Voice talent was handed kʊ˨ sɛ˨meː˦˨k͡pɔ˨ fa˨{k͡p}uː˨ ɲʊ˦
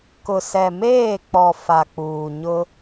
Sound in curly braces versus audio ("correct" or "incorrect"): correct